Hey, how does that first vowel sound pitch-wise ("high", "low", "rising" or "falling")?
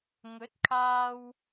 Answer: rising